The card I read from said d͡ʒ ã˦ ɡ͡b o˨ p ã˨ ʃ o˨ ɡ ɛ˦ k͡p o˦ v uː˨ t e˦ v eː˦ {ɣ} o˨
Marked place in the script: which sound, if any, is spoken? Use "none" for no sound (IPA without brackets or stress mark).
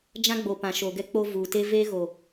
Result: ɣ